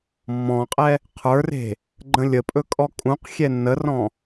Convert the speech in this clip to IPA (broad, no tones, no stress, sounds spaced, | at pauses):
mː ɔ̃ qʼ ɛ | qʰ ə˞ r e̤ | ɡ͡ǃ ə̃ lʲ ə pʼ ɵ kʼ ɔ kʼ ũ q xʲ ɛ nː ə r ɔ̃